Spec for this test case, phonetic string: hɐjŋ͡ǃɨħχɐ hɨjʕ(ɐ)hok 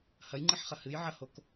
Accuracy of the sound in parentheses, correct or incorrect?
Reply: correct